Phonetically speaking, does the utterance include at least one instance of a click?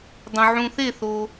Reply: no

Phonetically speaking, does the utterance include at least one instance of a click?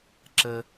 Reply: yes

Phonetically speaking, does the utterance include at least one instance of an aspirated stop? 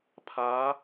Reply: yes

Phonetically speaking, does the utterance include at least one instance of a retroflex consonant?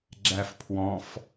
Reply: no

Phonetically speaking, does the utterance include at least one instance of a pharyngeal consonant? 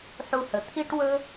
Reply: yes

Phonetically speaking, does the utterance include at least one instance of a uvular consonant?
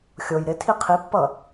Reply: yes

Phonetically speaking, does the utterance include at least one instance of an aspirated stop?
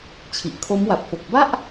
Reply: yes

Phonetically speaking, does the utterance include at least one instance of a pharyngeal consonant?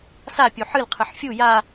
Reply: yes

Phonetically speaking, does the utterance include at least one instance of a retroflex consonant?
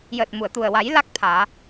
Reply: no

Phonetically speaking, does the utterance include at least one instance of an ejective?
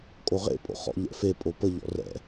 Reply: yes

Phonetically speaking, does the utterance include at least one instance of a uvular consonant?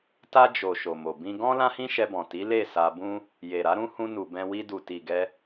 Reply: no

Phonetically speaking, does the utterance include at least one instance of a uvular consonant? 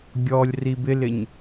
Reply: no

